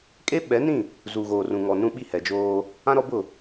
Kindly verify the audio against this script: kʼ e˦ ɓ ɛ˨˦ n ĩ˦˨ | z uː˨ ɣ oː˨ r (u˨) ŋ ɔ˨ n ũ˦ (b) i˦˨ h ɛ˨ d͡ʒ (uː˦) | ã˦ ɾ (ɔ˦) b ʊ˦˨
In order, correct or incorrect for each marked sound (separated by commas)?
incorrect, incorrect, incorrect, correct